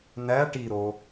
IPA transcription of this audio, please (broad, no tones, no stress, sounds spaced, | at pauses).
n æ ʈ i ɾ o